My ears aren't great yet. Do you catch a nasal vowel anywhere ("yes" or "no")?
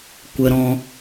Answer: yes